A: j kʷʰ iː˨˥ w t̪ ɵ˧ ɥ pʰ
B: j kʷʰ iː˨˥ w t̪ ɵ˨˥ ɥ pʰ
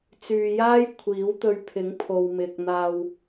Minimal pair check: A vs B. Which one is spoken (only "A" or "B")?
A